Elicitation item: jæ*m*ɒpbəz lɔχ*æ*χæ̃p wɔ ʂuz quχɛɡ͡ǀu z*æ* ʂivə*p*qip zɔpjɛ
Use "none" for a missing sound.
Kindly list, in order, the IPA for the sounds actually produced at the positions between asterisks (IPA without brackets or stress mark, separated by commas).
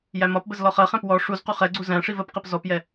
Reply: m, ɜ, æ̃, p